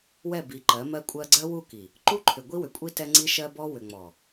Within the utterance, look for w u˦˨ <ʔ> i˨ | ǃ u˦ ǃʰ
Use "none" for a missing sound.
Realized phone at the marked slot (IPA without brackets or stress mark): k